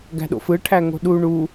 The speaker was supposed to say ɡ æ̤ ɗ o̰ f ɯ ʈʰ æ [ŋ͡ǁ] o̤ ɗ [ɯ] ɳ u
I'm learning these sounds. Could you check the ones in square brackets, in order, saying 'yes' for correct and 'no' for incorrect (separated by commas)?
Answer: no, no